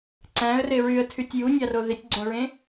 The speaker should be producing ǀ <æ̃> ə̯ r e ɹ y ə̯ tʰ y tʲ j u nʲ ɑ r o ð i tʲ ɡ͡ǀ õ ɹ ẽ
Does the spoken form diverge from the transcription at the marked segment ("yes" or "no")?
no